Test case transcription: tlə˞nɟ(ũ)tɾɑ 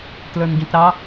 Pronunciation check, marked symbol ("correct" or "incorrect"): correct